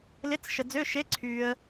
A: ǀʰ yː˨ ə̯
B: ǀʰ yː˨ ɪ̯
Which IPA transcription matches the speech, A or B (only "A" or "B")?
A